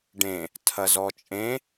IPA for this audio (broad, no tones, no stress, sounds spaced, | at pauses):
ɖ ẽ | tʰ ɐ z ɔ t͡ʃʼ ẽ